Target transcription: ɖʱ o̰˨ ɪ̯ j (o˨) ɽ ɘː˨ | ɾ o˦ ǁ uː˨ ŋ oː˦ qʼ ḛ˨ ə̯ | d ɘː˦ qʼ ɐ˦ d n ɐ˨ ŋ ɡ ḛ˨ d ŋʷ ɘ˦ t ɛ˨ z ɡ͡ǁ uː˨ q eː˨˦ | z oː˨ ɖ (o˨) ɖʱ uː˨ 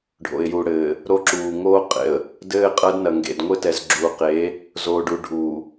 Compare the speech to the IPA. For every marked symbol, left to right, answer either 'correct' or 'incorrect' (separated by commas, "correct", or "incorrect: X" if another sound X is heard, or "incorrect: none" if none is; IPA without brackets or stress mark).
incorrect: u˨, incorrect: u˨